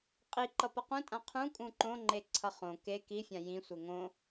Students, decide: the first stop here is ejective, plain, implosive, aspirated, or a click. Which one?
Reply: ejective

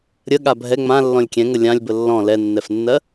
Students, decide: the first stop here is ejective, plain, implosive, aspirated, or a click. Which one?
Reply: implosive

